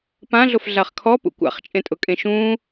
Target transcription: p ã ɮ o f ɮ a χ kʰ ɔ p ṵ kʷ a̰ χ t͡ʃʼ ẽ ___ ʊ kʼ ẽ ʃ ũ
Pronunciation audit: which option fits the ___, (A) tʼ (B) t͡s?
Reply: A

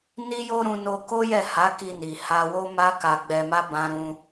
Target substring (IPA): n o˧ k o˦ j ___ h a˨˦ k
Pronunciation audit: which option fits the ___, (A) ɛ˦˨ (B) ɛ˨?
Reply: A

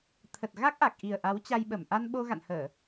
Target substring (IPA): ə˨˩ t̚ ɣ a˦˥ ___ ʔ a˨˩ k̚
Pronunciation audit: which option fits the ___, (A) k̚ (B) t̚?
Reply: A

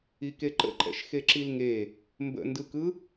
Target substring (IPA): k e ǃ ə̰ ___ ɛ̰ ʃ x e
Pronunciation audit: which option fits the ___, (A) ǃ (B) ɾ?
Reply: A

